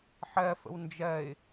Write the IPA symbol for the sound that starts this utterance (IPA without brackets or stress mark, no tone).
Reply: ħ